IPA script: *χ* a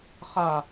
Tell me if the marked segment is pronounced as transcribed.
yes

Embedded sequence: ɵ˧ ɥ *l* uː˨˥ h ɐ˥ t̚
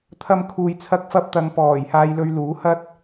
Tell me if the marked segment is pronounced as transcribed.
yes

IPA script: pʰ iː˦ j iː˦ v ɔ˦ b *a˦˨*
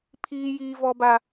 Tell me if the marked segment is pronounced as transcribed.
no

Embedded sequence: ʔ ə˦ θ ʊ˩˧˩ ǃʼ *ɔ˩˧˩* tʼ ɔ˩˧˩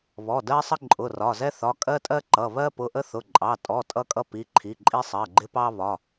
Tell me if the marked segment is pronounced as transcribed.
no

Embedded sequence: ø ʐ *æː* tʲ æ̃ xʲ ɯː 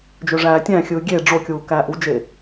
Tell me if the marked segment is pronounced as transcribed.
yes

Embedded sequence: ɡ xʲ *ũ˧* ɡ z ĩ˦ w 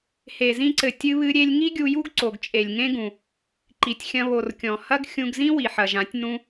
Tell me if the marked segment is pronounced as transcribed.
yes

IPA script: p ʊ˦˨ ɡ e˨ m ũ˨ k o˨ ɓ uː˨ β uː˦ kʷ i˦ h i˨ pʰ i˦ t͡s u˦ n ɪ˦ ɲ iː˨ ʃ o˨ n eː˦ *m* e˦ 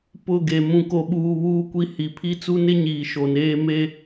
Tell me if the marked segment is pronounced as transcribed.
yes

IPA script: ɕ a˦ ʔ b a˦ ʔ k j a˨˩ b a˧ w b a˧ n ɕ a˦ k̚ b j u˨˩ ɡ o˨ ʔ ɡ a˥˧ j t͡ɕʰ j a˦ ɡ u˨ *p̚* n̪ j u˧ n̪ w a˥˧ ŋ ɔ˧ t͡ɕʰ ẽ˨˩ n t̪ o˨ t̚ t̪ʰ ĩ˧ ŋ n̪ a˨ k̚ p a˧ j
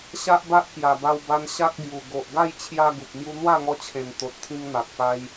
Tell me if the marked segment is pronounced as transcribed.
yes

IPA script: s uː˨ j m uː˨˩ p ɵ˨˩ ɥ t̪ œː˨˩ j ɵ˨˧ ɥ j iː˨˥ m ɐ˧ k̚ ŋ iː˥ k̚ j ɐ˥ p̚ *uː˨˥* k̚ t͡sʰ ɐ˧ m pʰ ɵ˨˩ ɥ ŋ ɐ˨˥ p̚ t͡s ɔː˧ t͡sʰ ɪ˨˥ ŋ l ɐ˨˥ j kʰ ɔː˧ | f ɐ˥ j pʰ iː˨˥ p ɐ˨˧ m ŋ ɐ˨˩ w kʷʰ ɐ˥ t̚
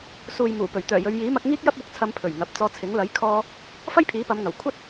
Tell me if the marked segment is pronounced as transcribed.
yes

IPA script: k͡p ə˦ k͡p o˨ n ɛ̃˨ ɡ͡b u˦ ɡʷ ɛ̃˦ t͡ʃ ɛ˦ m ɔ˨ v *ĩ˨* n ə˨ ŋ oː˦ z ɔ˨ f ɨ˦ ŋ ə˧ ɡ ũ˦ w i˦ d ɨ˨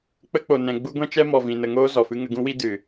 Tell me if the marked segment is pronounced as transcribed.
yes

